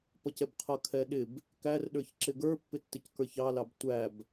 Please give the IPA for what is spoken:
p ʌ c ɛ b qʰ ʌ kʰ ɛ ɗ ɪ b | k æ r ɗ ə˞ ç ǁ ɪ ɡ ə˞ pː ɪ tː ɪ c k ə˞ ç ɑ l ɑ b tʷ æ b

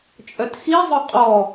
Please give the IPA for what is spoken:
t͡ʃʼ œ t x i zˤ œ qʼ ɔ

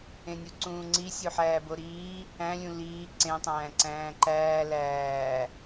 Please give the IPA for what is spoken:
ẽ nʲ u ǀ ũː ŋ͡ǀ i sʲ u ħ æː b o ɾ iː | æ̃ lʲ ũ l iː ǀ ẽ tˤ æ̃ː ǀ æ̃ː ǃ æː l æː

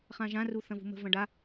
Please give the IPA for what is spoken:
χ ã ʒ ã r u θ ɐ̃ v ṳ m ə̤ v ɐ̃ ɖ a

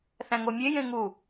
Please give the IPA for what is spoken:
θ æ̃ ŋ o mʲ e j ẽ ŋ u

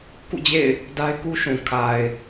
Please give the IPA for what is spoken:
k ṵ˦˨ d͡ʑ ḛ˦˨ ɪ̯ | d a˦ ɪ̯ k u˦ ʃ ũ˨ kʰ a˨ ɪ̯

